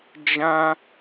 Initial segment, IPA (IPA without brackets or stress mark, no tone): d͡ʒ